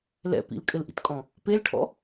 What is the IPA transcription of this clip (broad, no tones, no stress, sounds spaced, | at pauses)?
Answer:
l ɛ̰ p ḭ l kʼ ɘ l ʔ ḭ t kʼ ɔ̃ | p e l ʈʰ ɔ̰